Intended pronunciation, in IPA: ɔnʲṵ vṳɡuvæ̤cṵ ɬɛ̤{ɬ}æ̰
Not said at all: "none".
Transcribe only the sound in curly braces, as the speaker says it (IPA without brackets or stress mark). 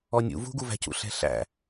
ɬ